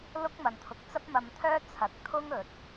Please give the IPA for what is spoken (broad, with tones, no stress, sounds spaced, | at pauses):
l ʊ˥ k̚ m ɐ˨ n t̪ʰ ʊ˨ k̚ t͡s ɐ˥ p̚ m ɐ˧ m t̪ʰ œː˥ t͡sʰ ɐ˨˥ k̚ t̪ʰ ʊ˥ ŋ ɵ˨ t̚